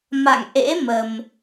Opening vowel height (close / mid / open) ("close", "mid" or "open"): open